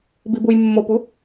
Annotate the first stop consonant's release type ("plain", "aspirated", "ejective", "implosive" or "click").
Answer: plain